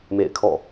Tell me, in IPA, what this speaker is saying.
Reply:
mḛ˦˨ɪ̯kʰɔ̰˦˨

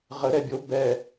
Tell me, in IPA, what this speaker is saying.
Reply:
ʁəɾɛ bʲo bɛ

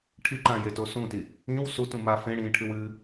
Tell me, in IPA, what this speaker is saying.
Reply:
ʈʰiǃãjeto sũti | ĩw sutũma fẽɽĩːʈʰɨw ɨ

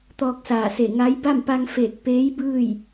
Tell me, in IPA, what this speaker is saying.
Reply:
t̪ɔː˧k̚saː˧˩se˧˩ ŋa˧˥j ba˥˨mpa˧ŋ feː˧˩k̚peː˧˥jbɯː˥˨j

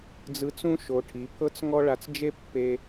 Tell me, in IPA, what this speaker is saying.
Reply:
d͡zɯ˧t͡sũ˦ ʃo˧ʈʰi˨˦ pʰɤ˦t͡s ŋɔ˦ɭa˧t͡s d͡ʒe˦pːe˧

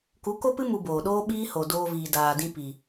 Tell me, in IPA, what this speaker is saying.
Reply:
ku˨˦ko˦pɨ˦ mu˧boː˨ ɗoː˦ɓiː˦ho˨ doː˧viː˨daː˨dĩ˧ pi˨

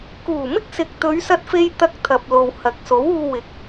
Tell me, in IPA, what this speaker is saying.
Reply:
kuː˨˩mɪ˥k̚sɪ˨k̚ t̪ɵ˨˧ɥsɐ˧t̚fe˧j t̪ɐ˧k̚t̪ʰɐ˨p̚lo˨w hɐ˨k̚so˨˥w uː˧wɪ˨˥k̚

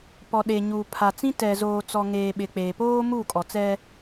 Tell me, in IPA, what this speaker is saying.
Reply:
pɔ˨ɗe˨ɲuː˨ pʰa˨t͡sĩ˦ tɛ˨zoː˨t͡sɔ˨ŋeː˨ ɓɪ˨k͡peː˨poː˦ muː˦˨kʼɔ˨t͡sɛ˦

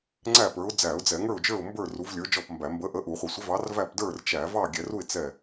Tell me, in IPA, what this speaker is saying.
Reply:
ŋ͡ǀæ˥˨pə˞˨˥ʊ̯ d͡zæ˧˩˧ʊ̯d͡zɛ˧˩˧ŋə˞˥˨ʊ̯d͡ʒə˞˥˨ʊ̯ mbə˞˥˨ ru˨˥vlʲə˞˨˥d͡ʒɔ˥˨pmbæ˧˩˧ mbə˨˥ʔə˨˥ ʔu˧˩˧χʷɪ˧˩˧sʷɪ˨˥vɑ˨˥r væ˥˨pdə˞˥˨rt͡ʃæ˧˩˧ vɑ˥˨ɡʲɛ˧˩˧ru˥˨ɪ̯ t͡sɛ˥˨

